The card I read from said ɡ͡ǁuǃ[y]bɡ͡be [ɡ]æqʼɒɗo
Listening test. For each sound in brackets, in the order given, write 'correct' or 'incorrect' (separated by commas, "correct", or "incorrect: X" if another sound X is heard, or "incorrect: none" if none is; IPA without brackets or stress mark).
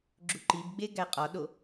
incorrect: i, correct